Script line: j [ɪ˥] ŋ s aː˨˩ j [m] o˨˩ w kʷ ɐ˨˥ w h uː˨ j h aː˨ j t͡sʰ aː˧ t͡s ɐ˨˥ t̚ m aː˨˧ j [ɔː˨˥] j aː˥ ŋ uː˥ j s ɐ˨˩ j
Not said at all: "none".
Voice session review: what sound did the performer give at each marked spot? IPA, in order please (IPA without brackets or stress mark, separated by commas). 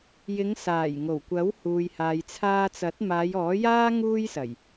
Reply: ɪ˨˧, ŋ, ɔː˨˥